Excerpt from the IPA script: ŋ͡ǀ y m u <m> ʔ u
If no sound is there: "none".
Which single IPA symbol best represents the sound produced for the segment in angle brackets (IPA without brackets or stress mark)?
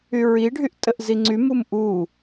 m